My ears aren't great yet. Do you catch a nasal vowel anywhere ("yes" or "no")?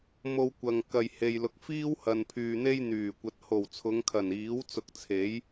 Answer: no